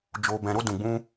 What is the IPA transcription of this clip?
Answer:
d͡ʒ o˧ b ɛ̃˧ ɾ o˦ d ũ˧ ɡ͡b ũ˦

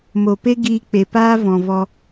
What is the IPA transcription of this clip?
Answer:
m o˨ p e˦ ɡ iː˧ k͡p e˨ p aː˦ v ɔ̃˨ v ɔ˧

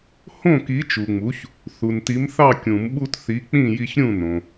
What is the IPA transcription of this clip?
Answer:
h õ˥˨ k i˨˥ t͡ʃ u˨ ŋ͡m u˨˥ ç | θ u˨ n t i˨˥ m θ ɑ˥˨ kʲ ũ˨˩˦ m ɓ u˦ t θ i˨˥ k͡p ĩ˥˨ j i˦ ç ɾʲ ũ˥˨ n õ˨

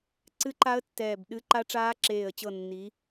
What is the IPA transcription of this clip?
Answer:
ǀ ɨ˦˥ ǃ a˦˥ ə̯ tː ɛː˦˨ b ɗ ɨ˦˥ ǃ a˦˥ ʈ͡ʂ aː˦˥ ǁ eː˦˨ ə̯ t͡ɕ ɤ˦˨ nː i˨˦

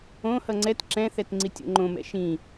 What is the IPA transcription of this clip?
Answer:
õ h ʌ ŋ͡ǀ ɛ t ǁ ɛ̃ θ ɛ t ŋ͡ǀ i tʲ o̰ ŋ͡ǃ õ m ɛ̰ ʃ ĩ

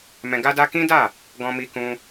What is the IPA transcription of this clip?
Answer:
m ɛ̃˧ ɡ a˦ d a˦ k ĩ˦ d a˦˨ | ɡ ɔ̃˧ m i˧ k ũ˧

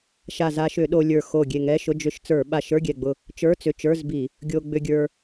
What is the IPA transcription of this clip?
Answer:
ʃ a˧˩ z a˧ ʃ ʏ˧˩˧ ɗ o˧ lʲ ə˞˧˩ x o˧˩ ɡʲ e˧˩ ŋ ɛ˧˥˧ ʃ ʊ˧˥˧ d͡ʒ ʏ˧ ʃ t͡s ə˞˧˩˧ ɓ a˧˩ ʃ ə˞˧˥˧ ɡʲ ɛ˧˩ ɡ͡b ʊ˧˩ | t͡ʃ ə˞˧˥˧ t͡s ʏ˧˩ t͡ʃ ə˞˧˥˧ z b i˧˩˧ | ɡʲ o˧ ɡ͡b ʏ˧ ɡʲ ə˞˧

